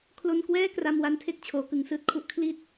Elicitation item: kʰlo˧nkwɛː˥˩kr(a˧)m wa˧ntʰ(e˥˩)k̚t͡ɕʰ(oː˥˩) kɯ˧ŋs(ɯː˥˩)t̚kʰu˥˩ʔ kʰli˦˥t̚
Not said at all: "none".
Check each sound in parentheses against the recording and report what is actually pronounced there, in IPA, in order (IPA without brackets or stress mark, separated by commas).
a˧, e˥˩, oː˩˦, ɯː˥˩